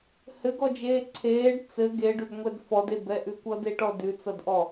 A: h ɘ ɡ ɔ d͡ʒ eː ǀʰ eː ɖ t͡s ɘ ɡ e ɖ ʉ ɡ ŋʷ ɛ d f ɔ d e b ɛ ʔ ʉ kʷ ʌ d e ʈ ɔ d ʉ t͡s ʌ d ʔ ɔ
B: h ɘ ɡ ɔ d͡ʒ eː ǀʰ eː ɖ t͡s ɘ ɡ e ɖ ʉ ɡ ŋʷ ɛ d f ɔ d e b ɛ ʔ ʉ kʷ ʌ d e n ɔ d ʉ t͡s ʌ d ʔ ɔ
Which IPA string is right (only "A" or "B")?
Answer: A